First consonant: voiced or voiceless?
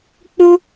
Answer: voiceless